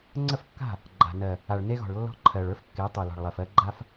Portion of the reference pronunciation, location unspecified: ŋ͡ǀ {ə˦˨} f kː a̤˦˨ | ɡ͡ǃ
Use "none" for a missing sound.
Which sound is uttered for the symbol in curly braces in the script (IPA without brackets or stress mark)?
ə˦˨